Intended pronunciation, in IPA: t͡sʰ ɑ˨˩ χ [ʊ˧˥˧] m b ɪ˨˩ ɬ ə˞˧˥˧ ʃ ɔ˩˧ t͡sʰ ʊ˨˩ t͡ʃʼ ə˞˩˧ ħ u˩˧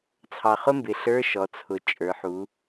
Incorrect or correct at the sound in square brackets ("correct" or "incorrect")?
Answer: incorrect